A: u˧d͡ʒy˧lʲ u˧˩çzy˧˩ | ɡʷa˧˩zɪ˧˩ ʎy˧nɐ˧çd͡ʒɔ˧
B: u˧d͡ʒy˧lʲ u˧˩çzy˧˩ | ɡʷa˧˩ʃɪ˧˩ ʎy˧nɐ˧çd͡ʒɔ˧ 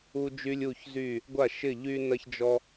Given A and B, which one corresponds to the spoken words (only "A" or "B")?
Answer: B